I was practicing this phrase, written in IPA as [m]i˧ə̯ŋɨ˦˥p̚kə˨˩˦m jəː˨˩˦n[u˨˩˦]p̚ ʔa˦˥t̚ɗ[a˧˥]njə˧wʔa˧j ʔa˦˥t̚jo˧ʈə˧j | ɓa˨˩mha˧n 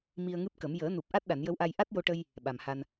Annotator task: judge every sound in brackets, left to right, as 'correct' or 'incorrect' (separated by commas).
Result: correct, incorrect, incorrect